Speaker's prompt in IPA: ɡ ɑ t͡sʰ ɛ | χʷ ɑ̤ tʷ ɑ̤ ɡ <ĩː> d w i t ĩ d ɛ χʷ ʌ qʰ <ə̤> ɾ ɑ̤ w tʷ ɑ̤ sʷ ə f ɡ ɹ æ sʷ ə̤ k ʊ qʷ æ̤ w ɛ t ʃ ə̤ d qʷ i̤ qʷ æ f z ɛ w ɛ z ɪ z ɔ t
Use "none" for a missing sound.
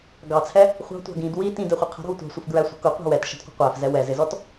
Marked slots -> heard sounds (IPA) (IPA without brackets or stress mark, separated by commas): ĩ, ə̤